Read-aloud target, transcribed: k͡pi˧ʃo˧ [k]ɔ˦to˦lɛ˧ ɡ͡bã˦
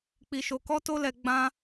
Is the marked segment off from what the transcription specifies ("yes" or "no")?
no